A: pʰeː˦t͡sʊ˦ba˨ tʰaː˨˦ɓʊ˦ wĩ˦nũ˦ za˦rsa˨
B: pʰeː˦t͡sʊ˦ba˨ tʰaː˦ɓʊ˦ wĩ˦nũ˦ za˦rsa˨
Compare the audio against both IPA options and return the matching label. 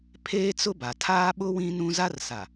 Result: B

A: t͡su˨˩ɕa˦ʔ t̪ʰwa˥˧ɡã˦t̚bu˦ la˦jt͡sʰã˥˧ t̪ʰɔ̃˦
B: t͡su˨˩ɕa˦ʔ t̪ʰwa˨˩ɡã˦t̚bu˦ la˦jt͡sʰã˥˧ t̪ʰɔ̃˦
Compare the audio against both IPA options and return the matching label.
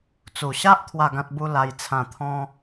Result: A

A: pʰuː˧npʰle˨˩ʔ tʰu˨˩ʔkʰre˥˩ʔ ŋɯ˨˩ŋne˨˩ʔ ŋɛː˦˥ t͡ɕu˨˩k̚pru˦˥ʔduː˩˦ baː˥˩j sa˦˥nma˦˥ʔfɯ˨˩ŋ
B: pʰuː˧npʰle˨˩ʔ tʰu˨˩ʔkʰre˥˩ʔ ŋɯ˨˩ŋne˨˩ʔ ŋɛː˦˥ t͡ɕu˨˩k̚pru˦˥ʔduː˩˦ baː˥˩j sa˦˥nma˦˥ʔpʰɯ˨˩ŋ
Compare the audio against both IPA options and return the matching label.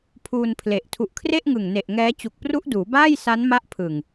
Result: B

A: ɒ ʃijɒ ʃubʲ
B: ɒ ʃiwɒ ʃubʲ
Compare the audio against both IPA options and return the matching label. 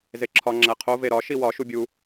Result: B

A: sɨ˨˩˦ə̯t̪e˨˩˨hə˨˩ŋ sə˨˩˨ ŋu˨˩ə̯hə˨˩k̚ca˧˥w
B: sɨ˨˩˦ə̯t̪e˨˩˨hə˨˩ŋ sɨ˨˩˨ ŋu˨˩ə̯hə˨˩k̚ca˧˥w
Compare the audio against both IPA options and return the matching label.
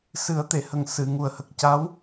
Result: B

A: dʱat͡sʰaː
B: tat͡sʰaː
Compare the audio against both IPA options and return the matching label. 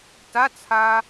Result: B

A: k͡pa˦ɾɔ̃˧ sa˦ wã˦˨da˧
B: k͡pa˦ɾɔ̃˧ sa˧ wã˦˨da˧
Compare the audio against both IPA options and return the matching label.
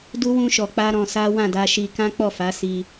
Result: A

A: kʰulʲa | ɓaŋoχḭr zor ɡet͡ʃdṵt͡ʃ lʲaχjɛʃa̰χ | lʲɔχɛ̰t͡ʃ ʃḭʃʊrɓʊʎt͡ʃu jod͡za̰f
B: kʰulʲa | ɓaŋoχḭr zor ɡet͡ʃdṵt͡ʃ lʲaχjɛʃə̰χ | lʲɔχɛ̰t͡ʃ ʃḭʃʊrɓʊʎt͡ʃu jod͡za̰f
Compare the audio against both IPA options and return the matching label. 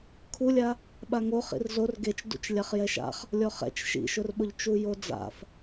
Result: A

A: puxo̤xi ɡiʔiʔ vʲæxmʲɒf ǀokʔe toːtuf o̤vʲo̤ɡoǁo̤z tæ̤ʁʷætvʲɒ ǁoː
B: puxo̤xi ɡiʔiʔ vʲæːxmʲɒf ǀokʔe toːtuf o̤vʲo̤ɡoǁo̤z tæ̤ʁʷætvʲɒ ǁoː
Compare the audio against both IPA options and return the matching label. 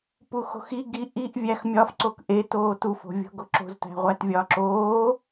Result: A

